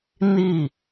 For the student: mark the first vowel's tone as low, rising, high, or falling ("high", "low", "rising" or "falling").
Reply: falling